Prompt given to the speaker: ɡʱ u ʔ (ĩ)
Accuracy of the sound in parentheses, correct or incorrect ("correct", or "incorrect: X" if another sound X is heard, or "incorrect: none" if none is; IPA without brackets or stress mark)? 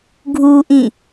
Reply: correct